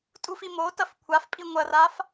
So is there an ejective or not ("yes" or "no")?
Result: yes